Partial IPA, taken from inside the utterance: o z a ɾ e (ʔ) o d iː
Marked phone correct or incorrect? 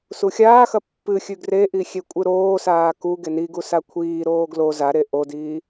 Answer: correct